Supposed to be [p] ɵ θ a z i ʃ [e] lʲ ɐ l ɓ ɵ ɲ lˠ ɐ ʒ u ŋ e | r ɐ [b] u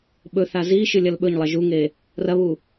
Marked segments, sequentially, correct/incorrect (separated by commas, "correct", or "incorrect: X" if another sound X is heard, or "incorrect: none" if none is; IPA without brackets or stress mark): incorrect: ɓ, incorrect: ɨ, incorrect: β